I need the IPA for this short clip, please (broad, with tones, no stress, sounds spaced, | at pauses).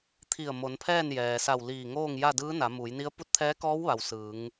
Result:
t̪ʰ i˧˩ ə̯ m o˩˧ n pʰ ɛː˥˨ n j ɛː˩ s a˧˩ w l iː˧˩ ŋ oː˥˨ ŋ j a˥˨ d ɯː˧˥ n a˩˧ m u˩˧ j n i˧˥ ə̯ p u˧˥ t̚ t̪ʰ ɛː˧˥ k ɔː˧˥ w ʋ a˩ w s ɯː˩˧ ŋ